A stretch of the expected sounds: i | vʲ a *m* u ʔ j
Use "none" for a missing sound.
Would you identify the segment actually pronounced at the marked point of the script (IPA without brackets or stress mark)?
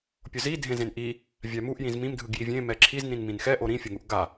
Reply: m